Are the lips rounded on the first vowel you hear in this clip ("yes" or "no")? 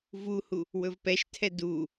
yes